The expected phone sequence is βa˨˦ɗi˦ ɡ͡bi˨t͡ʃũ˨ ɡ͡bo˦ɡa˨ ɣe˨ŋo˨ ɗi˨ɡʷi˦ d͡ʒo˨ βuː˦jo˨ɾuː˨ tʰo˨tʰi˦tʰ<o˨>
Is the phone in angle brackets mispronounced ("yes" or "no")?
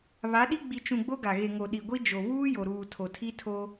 yes